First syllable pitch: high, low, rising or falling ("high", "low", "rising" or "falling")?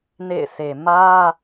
falling